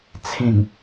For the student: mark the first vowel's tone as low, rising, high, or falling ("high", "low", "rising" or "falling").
low